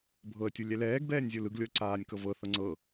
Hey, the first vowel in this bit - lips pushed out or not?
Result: no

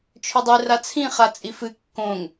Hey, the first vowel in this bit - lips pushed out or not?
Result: yes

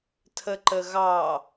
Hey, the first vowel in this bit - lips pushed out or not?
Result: no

